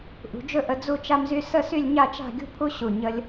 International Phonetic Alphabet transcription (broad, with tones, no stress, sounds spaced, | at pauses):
ʔ ṳ˩˧ d͡ʒ ɵ˥ ʔ ə˧ d͡z u˥˧ t͡ʃ a˥ m z y˥ s ə˥˧ s y˥˧ lʲ ɲ a˥˧ t͡ʃ a̤˥˧ ɡʲ ṳ˥ pʰ u˥ ɕ u˧˩ ɲ ə˧ lʲ